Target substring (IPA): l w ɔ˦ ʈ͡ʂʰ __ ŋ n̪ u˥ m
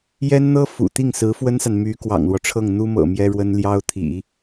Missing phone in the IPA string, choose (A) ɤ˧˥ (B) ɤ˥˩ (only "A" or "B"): B